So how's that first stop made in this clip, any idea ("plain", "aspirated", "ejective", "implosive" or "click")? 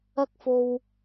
plain